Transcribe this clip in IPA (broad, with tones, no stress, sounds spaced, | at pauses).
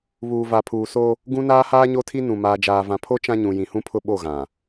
β uː˨ v a˨ pʰ uː˨ s o˦ | ɡ ũ˦ n aː˦ h aː˦ ɲ o˦ tʰ i˦ n ũ˨ m aː˨ d͡ʒ aː˨ v ã˨ pʰ o˦ t͡ʃ ã˦ ɲ ũ˨ j ĩ˨ h ũ˦ pʰ ʊ˦ ɓ o˦˨ ɣ ã˨